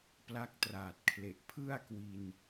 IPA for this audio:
p l a˦˥ k̚ t r aː˨˩ t̚ kʰ l e˨˩ ʔ pʰ ɯ˥˩ a̯ k w i˧ n

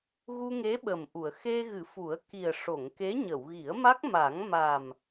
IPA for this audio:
ɣ u˧ ŋ e˧˥ ɓ ə˨˩ m ʔ u˨˩˨ ə̯ x e˧ ɣ ɨ˨˩˦ f u˨˩˦ ə̯ k i˨˩ ə̯ ʂ o˨˩˨ ŋ k e˧˥ ɲ ə˨˩˨ w ɣ i˨˩˦ ə̯ m a˦˥ k̚ m a˨˩˦ ŋ m a˨˩ m

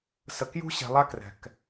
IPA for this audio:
s ə˨ k j ṳ˦ ɕ ɛ̤˨ lˠ a˦ k r ɛ̤˨ k

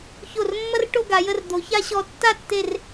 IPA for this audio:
ç o˧˩ r mː ɐ˥ r ʈ o˥˧ ɡ a˩˧ j ə˧ r d̪ o˩˧ ç a˥ ɕ ɔ˧ tː a˥˧ tː e˧˩ r

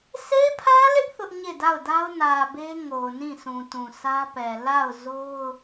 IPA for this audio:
s e˦ pʰ ä˦ l ɪ˦ ʔ θ ʊ˦ ʔ ɲ e˦˨ d a˦˨ ʊ̯ d a˦ ʊ̯ n ä˨ b e˦ ŋ o˨ ʊ̯ n ĩ˦˨ sʰ ũ˨ t ũ˨ s ä˦ p ɛ˨ l a˦˨ ʊ̯ z o˦ ʊ̯

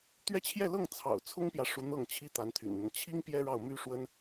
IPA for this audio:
t̪ ɥ ɛ˥˧ t͡ɕʰ j ɛ˥˧ l ɤ˥˩ ŋ t͡sʰ ɑ̰˨˩ ʊ̯ t͡sʰ ʊ˥ ŋ p j ä˨ ʂ u˧˥ n̪ ɤ˥˩ ŋ t͡ɕʰ i˥ t̪ a˧˥ n t̪ʰ y̰˨˩ n n̪ ə˦ n t͡ɕʰ i˥ ŋ p j ɛ˥ ɻ ɑ˥˩ ʊ̯ m y˥ ʂ w ə˥ n

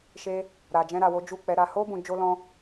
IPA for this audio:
ʃ e˧ | ɾ a˨ d͡ʒ ɛ̃˧ ɾ a˨ w o˨˦ d͡ʒ u˦˨ k͡p ɛ˨˦ ɾ a˧ h o˦ b ũ˧ d͡ʒ o˦ l ɔ̃˦

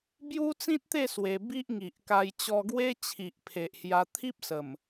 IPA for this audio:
b j u˦ t͡s ĩ˦ t̚ t̪ e˥˧ s w e˧ b i˦ ʔ ŋ i˨ ʔ k a˧ j t͡ɕ ɔ˧ ɡ w e˦ t͡ɕʰ i˨ ʔ pʰ e˨ ʔ h j a˧ t̪ʰ i˦ p̚ s ə˨˩ m

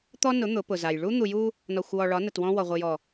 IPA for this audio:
t̪ ɔ˦ n ʊ˨˦ n̪ ʊ˨˦ p ʊ˨ z a˨ j ɭ u˦ n̪ u˨ j u˦ | n ɒ˨ xʷ w ɔ˨ ɭ ɒ˨˦ n ə˨ t w ɔ̃˦ w ɔ˨ ʁʷ ɨ˨ j ɔ˨

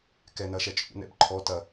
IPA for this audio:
k ɛ n ɐ ʃ ɛ t͡ʃʼ ṵ n ɛ̰ b ǃʰ ɔ t ɐ

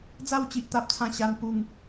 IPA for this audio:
d͡z a˥˧ w t͡ɕ i˦ ʔ t̪ a˦ p̚ t͡sʰ ã˥˧ ɕ a˦ n p u˥˧ ŋ

